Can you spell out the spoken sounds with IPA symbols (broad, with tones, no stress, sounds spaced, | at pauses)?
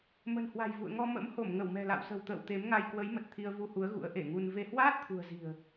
m ə̤˨˩ n h w a̤˨˩ j v ṵ˧˨ ə̯ ŋ ɔ˧ m ə̰˧˥ m h o˧˩ m ŋ ə˧˩ w m ɛ̤˨˩ l a̰˧˨ w s ə̤˨˩ w t̪ ə̰ː˧˨ w t̪ e˨˦ m ŋ a˧ j k w ə˨˦ j m ə˨˩ t̚ t̪ʰ i˧ ə̯ v u˧ h u˨˦ ə̯ ɣ ṵ˧˥ ə̯ ʔ e˧˩ ŋ u˧ n v e˧ h w aː˦˥ t̚ t̪ʰ ṳ˨˩ ə̯ z i̤˨˩ ə̯